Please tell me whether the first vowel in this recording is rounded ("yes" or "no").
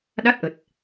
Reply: no